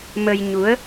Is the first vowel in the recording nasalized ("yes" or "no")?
no